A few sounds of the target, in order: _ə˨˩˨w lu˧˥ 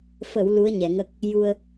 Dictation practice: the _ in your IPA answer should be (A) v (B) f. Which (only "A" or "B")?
B